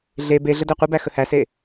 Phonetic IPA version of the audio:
ɮ e b e ɮ ə d æ qʷ i b æ x ə h æ s e

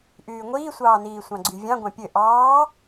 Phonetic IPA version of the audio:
ʔ yː ŋʷ iː sʷ ɑː n iː sʷ ɑ̃ ɡ͡ǀ y vʲ ɑ̃ ɡʷ ɑ̃ pʲ ø ʔ ɑː

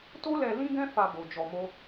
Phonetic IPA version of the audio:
t o˦ l ɛ˧ l ĩ˦ ɡ ɛ̃˦ f a˧ b o˨ d͡ʒ ɔ˨ m o˧

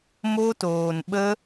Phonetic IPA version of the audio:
m o˦ t oː˧ n ɓ ə˦

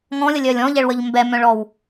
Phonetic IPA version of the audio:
ŋ ɔ̃ lʲ ə lʲ œ lʲ ɔ̃ ʎ ɛ ɭ w ə ʎ m b ɛ m œ̃ ɭ ɔ w

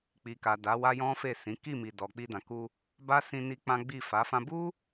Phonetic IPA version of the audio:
k͡p i˨ k a˨ d a˨˦ w a˦ j ɔ̃˦ f e˦˨ s ĩ˨˦ k i˦˨ m i˨ d ɔ˨ k͡p i˧ d ã˨ k u˧ | b a˦ s ĩ˧ n i˦ k͡p ã˦ ɡ͡b i˦˨ f a˨˦ f ã˦ b u˦

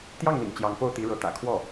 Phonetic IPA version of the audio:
t̪ j ɑ˥˩ ŋ n̪ ḭ˨˩ ŋ t͡ɕ j ɑ˧˥ ŋ p o˥˩ ʊ̯ t̪ i˧˥ ɻ ɤ˧˥ t̪ ä̰˨˩ kʰ w ɔ˥˩

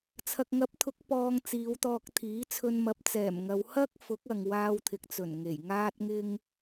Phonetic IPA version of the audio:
t͡sʰ ɐ˨ k̚ ŋ ɐ˨˥ p̚ t̪ʰ ʊ˨˥ k̚ p ɔː˧ ŋ t͡s iː˨˧ w t̪ ɔː˧ k̚ t̪ʰ iː˨˥ t͡sʰ ɵ˧ n m ɐ˨˥ p̚ t͡s ɛː˨˩ m ŋ ɐ˨˧ w h ɐ˥ k̚ f ʊ˨˥ k̚ ɐ˨ ŋ w aː˧ w t̪ʰ ɪ˨ k̚ t͡s ɵ˨˩ n ŋ e˨˩ j ŋ aː˥ t̚ ŋ ɪ˥ ŋ

